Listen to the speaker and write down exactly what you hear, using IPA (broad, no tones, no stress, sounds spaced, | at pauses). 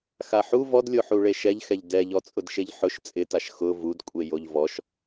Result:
x a ħ u v ɔ d lʲ o ħ u ɭ e ʃ ɛ ʎ x ɛ ʎ d ɛ ʎ ɔ t͡sʼ ʊ d ʃ e ʎ ħ ʊ ʃ t͡sʼ ɪ t a ʃ x ʊ v u d kʷʼ e j o ʎ v ɔ ʃ